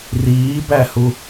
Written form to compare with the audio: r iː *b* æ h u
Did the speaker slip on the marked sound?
no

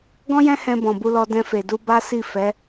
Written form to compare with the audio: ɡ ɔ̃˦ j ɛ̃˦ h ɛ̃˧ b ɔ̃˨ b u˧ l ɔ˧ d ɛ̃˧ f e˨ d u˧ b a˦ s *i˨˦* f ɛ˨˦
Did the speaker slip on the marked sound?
yes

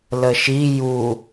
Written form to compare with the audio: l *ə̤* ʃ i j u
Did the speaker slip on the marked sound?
yes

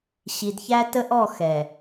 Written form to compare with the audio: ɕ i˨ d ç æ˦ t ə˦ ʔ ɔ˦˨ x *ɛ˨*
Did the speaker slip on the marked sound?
no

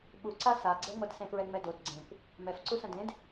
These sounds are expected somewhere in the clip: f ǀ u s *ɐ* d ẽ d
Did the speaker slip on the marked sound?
yes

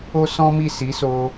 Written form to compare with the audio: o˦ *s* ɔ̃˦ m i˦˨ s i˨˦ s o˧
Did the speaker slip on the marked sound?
no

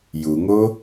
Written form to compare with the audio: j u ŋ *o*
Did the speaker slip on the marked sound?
no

